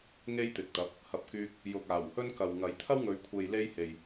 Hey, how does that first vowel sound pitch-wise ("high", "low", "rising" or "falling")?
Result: high